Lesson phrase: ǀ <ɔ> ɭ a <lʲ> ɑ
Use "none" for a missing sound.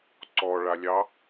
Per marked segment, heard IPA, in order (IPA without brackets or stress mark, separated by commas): ɔ, lʲ